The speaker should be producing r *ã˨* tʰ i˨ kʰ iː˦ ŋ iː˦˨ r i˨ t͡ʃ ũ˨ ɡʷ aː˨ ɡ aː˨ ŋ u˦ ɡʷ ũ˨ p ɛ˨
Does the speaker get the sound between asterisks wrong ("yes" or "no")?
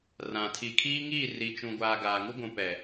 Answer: no